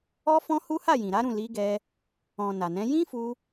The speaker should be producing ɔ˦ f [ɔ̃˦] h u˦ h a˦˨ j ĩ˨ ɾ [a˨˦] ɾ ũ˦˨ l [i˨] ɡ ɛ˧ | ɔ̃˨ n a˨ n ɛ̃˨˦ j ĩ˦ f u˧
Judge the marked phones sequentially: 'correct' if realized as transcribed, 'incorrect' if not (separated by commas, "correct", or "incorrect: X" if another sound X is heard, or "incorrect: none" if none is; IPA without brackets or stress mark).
correct, correct, incorrect: i˨˦